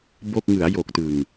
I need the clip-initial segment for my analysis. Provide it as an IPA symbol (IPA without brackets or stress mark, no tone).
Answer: b